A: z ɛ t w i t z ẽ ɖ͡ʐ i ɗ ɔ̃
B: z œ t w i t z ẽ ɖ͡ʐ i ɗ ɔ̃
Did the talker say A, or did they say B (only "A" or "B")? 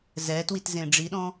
A